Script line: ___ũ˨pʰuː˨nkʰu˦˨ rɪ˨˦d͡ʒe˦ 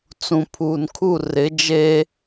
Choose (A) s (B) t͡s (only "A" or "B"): B